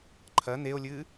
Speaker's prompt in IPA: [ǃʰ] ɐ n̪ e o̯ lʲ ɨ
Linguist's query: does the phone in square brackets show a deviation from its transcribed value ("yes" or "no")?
no